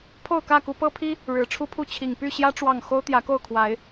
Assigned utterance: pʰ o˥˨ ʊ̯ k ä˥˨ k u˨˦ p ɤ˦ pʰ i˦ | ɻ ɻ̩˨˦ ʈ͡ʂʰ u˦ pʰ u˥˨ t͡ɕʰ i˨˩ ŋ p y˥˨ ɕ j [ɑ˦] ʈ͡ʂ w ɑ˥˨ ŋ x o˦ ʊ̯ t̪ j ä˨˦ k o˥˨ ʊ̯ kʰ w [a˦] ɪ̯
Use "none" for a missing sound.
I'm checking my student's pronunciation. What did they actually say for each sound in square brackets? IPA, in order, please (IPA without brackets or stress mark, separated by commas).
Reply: ä˦, a˨˦